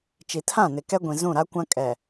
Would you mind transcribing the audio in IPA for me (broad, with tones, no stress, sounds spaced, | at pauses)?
t͡ʃ i˨ tʰ ã˦˨ n ɪ˨ k ɛ˦ ɡʷ ĩ˨ z ũ˦˨ ɾ a˦ kʷ ã˦ kʼ ɛ˨